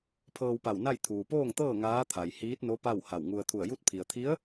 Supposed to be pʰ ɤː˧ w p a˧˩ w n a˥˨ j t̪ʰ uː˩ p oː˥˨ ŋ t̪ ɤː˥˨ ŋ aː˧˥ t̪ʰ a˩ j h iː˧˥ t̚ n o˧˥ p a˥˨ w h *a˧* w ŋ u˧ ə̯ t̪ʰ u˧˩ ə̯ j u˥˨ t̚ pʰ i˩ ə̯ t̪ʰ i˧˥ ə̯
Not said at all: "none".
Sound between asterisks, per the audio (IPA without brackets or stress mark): a˧˩